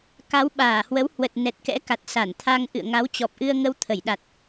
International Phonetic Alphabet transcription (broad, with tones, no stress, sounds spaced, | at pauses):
k a˨˦ w ɓ aː˧˩ h w ə˨˦ w h w ə˨˩ t̚ n ɛ˨˩ t̚ k ɛ̰˧˥ k a˨˩ t̚ s a˧˩ n t̪ʰ a˧ ŋ ʔ ɨ̰˧˨ ə̯ ŋ a˨˦ w t͡ɕ ɔ˨˩ p̚ ʔ ɨ˧ ə̯ ŋ ə˧ w t̪ʰ ə˧˩ j ɗ a˨˩ t̚